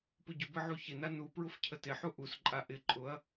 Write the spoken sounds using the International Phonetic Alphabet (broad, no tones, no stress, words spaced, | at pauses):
pʊɟʊbə ʕuçɪna nu pɹʊfcʰətɪħu ʔusǃʼa ʔɪǃʼʊɐ̯